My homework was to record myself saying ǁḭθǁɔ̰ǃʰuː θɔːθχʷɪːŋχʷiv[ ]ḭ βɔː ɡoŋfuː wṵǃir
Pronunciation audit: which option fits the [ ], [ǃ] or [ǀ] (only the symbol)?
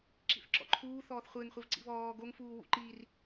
ǀ